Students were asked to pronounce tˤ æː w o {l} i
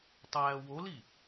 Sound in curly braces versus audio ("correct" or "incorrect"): correct